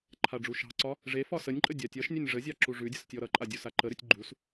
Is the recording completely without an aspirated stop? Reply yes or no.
no